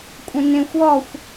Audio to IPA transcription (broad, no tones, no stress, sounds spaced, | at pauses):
kʷʼ ə̃ n ẽ xʷ ɔ xʷ